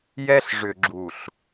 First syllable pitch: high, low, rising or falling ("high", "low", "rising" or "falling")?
high